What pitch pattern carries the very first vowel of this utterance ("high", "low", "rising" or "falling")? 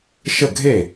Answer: falling